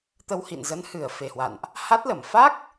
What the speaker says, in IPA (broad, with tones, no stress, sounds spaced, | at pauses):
t̪ ə˧ w h ḭ˧˨ n z ə˨˦ n h ɨ˨˩ ə̯ f e˨˩ h w a̰˧˨ n ʔ | h a˦˥ t̚ l ə˧˩ m f a˦˥ k̚